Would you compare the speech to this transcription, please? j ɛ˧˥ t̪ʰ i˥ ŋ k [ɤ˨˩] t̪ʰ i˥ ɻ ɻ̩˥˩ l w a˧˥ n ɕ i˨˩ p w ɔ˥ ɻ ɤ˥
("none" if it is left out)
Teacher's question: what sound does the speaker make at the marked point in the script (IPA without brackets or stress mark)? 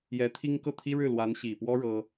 ɤ˥˩